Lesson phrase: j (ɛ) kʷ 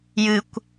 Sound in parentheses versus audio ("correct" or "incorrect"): incorrect